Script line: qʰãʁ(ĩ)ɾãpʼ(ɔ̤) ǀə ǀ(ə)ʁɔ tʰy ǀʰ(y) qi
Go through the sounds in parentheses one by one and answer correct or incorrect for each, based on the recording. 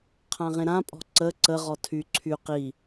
incorrect, correct, correct, correct

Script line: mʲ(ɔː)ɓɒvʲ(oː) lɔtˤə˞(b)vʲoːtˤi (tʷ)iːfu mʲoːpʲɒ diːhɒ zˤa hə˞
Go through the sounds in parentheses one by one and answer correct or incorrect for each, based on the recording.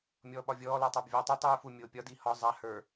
correct, incorrect, correct, incorrect

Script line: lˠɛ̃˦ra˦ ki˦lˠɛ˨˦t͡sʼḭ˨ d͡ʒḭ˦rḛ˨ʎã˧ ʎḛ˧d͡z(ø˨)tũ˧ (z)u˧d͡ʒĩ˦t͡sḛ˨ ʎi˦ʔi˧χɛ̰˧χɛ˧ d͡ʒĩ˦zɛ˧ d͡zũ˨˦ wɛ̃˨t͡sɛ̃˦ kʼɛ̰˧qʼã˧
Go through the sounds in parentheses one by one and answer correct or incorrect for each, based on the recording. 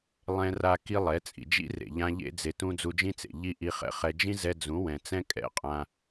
incorrect, incorrect

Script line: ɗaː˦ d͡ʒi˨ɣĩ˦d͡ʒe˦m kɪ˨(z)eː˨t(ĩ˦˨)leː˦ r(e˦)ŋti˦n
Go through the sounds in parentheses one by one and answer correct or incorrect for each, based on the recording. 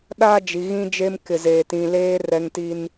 correct, incorrect, incorrect

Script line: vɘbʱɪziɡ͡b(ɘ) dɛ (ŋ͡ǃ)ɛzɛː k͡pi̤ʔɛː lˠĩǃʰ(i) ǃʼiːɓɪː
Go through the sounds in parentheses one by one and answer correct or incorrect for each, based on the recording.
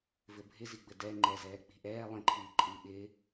correct, correct, incorrect

